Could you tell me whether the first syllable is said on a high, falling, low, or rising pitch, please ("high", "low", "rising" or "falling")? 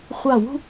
falling